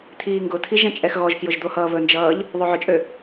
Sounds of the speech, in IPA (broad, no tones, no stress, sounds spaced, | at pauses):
t̪ʰ iː ŋ ɡ ʊ t̪ʰ i ʒ ɛ̃ t͡ʃʼ ɛ x ɣ ɔ ʒ k j ʊ ʒ d̪ o h ʌː β ɵ n d͡ʒ ʌː ʎ | ðˤ o ʕ ɵ t͡ʃʼ ø